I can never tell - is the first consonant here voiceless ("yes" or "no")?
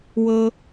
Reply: no